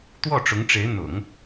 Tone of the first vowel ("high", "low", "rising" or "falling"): falling